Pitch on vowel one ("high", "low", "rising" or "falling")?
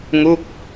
falling